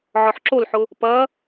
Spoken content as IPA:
ʕ ɔ ħ ǁ o l ħ ʊ | p ɐ

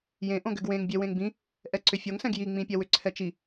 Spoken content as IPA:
j ẽ ʔ õ ɡ ʏ ɡ w ẽ ŋ bʲ e w ẽ ŋ b ĩ | ʔ ɛ ǀ ʏ fʲ o ŋ s ɛ̃ ɡ j i ŋ͡m ĩ pʲ ɛ w ʏ ǀʰ ɛ t͡ʃ i

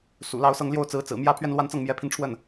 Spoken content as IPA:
s ṵ˨˩ l ɑ˥˧ ʊ̯ s ɤ˥˧ ŋ l j o˥˩ ʊ̯ t͡s ɹ̩˧˥ t͡s ɹ̩˨˩ m j ä˥ pʰ ɥ ɛ˥˧ n l w a˥˧ n t͡s ɤ˥˩ ŋ m j ɛ˧˥ pʰ i˧ n ʈ͡ʂʰ w ə˥˩ n

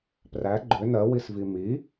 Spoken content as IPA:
p r æ ɡ͡ǃ ʏ n ɜ w i s v i m i

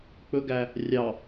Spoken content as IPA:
k͡p ɵ ɡ æ | rʲ ɑ

